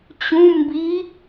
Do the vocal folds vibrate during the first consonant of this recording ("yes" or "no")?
no